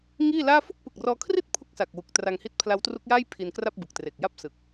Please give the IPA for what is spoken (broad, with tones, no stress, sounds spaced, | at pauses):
ŋ iː˥˩ l aː˥˩ f u˥˩ k̚ p ɯ˨˩ k̚ r ɔː˧ kʰ r i˥˩ t̚ pʰ u˥˩ k̚ s a˨˩ k̚ w u˨˩ k̚ t r a˧ ŋ h i˦˥ t̚ pʰ l a˦˥ w t r u˦˥ k̚ j aː˥˩ j pʰ i˧ n k r a˥˩ p̚ b ɯ˨˩ k̚ t r e˨˩ k̚ j a˥˩ p̚ s ɯ˨˩ k̚